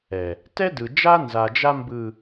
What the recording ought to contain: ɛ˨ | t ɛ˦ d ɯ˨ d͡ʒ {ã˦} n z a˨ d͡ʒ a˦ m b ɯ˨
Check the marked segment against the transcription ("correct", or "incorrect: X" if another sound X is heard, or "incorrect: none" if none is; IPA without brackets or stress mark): incorrect: a˦